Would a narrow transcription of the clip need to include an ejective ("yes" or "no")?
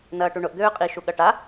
yes